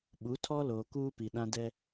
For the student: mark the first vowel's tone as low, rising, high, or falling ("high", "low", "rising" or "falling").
rising